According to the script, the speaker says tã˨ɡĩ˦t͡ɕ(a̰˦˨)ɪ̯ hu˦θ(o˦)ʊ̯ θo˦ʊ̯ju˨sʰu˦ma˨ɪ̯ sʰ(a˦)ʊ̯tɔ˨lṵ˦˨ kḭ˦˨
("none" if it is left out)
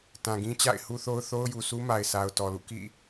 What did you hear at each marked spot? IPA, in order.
a̰˦˨, o˦, a˨

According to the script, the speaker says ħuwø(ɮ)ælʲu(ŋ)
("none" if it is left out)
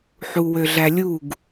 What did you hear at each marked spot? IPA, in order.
ɮ, ɡ

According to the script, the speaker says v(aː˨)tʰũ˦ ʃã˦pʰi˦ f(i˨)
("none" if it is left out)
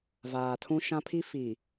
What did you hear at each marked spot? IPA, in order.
aː˨, i˨

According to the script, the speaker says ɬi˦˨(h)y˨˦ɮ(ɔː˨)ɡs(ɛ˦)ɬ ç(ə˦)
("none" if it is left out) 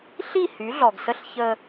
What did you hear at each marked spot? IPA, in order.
h, ɔ˨, ə˦, ə˦

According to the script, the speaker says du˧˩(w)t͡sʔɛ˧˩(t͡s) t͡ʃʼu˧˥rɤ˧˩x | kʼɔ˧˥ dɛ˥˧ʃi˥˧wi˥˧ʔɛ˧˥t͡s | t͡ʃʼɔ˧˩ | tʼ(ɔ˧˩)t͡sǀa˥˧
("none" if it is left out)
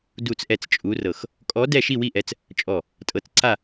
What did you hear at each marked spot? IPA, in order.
none, t͡s, ɤ˧˩

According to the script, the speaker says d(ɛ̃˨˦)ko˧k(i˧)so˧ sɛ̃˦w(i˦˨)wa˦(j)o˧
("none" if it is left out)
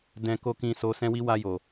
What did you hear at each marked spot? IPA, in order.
ɛ̃˧, ĩ˧, i˦, j

